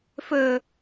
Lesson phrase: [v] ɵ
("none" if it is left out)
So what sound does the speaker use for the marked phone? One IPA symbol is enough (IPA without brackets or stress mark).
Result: f